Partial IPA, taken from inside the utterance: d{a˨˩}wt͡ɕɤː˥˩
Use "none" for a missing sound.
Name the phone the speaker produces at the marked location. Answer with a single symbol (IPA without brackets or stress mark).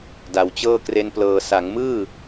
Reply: a˩˦